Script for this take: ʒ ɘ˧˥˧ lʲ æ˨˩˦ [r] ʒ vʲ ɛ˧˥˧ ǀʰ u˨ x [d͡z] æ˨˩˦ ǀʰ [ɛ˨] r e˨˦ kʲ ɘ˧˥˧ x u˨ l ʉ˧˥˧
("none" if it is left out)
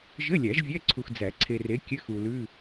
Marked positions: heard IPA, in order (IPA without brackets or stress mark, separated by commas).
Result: none, d͡z, e˨